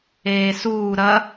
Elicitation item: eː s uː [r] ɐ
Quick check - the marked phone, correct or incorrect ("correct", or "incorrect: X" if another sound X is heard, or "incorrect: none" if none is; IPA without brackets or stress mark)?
incorrect: ɾ